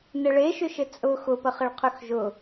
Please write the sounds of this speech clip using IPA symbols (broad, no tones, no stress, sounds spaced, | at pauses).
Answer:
n ɘ ɭ e ʃ ʏ ʃ ɘ t͡sʼ ʊ x ʊ p ə χ ɘ ɭ qʰ ʏ x ʒ ʊ